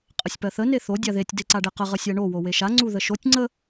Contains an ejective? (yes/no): yes